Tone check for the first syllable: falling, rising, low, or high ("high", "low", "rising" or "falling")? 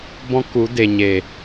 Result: high